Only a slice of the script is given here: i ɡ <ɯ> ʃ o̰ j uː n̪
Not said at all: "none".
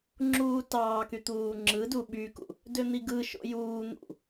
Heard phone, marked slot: ɯ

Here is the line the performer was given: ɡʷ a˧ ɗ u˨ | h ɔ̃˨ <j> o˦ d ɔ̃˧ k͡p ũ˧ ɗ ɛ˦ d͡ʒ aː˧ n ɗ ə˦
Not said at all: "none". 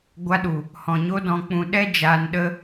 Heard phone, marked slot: ɲ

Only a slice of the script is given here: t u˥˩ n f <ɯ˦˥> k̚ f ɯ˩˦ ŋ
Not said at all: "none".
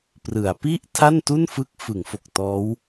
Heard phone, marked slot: ɯ˦˥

